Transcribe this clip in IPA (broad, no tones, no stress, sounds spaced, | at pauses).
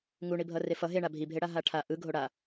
ŋ u ɳ i bʱ ʌ r e f ʌ ɦ e ɳ a bʱ i bʱ e ɽ a ɦ a ʈʰ a ʔ ɯ ɡʱ o ɽ a